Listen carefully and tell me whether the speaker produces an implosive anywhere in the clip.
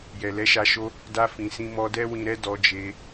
no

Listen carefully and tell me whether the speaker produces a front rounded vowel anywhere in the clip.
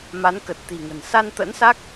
no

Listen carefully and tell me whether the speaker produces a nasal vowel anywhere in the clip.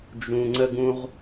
yes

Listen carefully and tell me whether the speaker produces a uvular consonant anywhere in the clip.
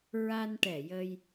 no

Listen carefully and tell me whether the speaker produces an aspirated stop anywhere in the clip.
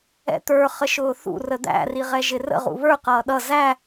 no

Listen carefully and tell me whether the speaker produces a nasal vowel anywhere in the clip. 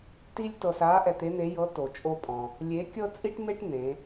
yes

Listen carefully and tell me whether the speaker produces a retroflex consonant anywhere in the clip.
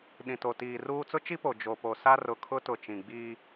no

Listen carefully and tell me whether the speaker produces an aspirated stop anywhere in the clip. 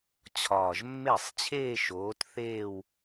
yes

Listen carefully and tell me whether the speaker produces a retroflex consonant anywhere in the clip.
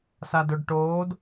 yes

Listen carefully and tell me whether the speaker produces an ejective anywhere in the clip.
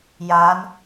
no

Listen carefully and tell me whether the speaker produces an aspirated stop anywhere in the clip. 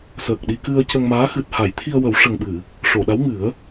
yes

